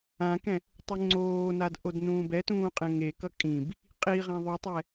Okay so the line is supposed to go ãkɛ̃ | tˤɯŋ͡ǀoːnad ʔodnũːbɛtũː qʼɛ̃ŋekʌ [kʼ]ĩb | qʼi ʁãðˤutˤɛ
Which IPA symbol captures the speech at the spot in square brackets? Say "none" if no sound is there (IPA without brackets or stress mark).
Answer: kʼ